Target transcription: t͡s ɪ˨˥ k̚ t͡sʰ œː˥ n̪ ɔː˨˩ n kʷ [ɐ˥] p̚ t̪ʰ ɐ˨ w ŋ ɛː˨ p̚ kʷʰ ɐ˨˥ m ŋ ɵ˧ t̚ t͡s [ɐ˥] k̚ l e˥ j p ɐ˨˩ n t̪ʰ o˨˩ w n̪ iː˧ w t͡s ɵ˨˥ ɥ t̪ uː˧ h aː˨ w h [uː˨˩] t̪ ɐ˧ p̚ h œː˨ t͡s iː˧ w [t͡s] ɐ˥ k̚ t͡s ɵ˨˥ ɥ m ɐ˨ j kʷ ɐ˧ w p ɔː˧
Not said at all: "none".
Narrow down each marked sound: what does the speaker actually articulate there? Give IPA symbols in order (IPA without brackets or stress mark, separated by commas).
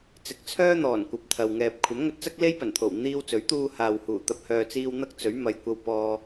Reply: ɐ˨, ɐ˥, uː˨˩, n̪